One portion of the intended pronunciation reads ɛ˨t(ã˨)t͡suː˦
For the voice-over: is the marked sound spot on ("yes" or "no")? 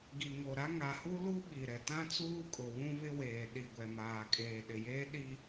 no